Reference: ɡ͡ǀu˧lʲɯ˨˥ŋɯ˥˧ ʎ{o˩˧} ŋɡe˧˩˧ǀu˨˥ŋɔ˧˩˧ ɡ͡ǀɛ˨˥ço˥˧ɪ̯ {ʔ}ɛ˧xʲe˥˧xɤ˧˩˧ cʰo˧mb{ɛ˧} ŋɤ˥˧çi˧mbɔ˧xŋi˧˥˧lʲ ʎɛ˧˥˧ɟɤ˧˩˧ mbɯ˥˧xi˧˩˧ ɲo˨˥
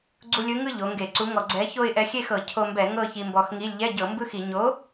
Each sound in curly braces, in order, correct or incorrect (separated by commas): correct, correct, incorrect